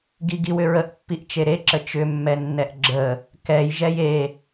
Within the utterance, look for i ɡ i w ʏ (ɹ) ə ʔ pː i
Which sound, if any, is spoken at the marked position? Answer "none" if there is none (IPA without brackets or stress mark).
ɹ